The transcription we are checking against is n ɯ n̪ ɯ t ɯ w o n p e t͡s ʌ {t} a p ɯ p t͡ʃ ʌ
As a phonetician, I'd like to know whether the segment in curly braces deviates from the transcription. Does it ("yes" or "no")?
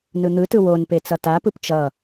no